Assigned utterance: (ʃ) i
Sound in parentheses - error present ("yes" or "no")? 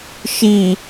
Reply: no